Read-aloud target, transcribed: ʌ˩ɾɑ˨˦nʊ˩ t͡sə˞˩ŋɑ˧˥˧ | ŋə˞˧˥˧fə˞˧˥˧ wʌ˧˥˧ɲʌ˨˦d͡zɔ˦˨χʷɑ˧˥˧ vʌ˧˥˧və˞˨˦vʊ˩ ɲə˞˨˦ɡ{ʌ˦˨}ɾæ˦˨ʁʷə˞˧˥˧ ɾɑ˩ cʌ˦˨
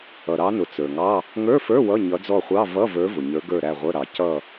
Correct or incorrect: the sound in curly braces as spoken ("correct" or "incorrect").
incorrect